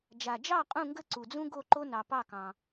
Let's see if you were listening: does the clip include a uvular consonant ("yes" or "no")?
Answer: yes